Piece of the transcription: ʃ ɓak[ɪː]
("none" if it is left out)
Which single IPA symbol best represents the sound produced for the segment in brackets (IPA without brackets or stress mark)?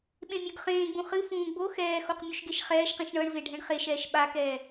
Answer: ɛː